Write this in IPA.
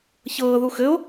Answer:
çɤːðu xɘo̯

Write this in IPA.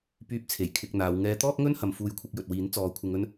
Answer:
pyː˧p̚t͡sʰe˨˩j kʰɪ˨k̚ n̪aː˨˧w ŋɛː˧t̪ɔː˥k̚ŋɵ˥n hɐ˧m fuː˧jkʷʰɪ˧k̚ jɵ˨t̚wiː˨˥nt͡sɔː˨˧ kʷʰɪ˧ŋɵ˥n

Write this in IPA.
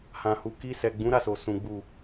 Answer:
hã˨hu˨ ki˧sɛ˨ ɡ͡bũ˨˦ɾa˦˨so˨sũ˨ ɡ͡bu˨

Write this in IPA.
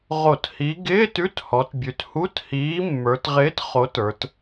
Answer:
ʁo˧˩˧thi˨˥ ɡɪː˧˥˧t ʉ˧˥˧thɔ˩˧t bʲʉ˩˧thu˧˥˧thiː˨˥ mːə˞˩˧tʁɪː˨˥t χo˨˥tə˞˩˧t

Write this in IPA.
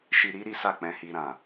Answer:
ʃi˧ɾi˦ɾi˦ sa˦˨k͡pɛ̃˧hi˧ɾã˨

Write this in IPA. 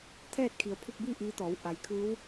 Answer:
t̪ʰɛː˥˨t̚kʰi˩˧ə̯ pʰu˧k̚biː˥˨ ʔiː˧˥t̪ɔː˩˧w ʔa˩˧jkʰɯː˧˥w

